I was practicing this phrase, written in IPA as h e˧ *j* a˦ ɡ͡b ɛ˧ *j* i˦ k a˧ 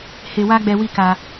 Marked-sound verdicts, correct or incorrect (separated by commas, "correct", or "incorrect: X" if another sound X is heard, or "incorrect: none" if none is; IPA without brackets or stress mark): incorrect: w, incorrect: w